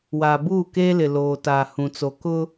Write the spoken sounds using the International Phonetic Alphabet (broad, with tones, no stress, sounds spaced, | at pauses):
w aː˨ b uː˦˨ k eː˦ l ɪ˨ l oː˨ t aː˨ h ũ˨ t͡s o˨ k ʊ˦